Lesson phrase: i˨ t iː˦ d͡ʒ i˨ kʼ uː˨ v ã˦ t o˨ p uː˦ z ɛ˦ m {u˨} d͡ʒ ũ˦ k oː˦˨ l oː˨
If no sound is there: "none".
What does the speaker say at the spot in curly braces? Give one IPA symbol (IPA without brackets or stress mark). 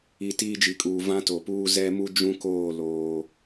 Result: u˦